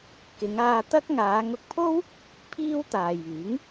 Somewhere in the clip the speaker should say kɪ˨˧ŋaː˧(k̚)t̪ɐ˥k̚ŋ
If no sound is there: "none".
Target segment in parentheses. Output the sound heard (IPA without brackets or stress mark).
none